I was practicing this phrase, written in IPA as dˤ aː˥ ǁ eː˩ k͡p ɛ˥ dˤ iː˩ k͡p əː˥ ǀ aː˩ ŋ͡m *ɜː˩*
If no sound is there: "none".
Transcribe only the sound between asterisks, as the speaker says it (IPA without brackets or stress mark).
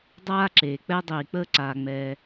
ɛː˩